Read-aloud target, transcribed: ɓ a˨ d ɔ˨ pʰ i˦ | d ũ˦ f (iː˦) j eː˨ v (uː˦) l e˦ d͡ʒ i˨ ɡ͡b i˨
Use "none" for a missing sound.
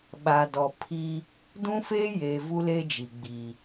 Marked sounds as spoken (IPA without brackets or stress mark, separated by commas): eː˦, u˦